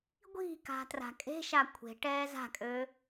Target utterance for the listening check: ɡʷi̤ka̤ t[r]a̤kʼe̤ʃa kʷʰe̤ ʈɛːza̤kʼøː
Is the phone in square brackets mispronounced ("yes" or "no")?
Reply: no